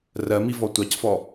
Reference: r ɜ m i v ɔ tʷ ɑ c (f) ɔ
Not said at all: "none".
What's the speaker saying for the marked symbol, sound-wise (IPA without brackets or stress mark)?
f